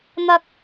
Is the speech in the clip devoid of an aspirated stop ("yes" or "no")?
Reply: yes